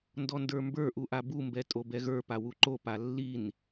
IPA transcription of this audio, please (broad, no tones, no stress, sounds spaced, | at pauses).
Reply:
n d ɔ n d ə˞ m b ə˞ ʔ u ʔ a b u m b ɛ tʼ o b ɛ ɣ ə˞ p a w u ǃ o p a lː i n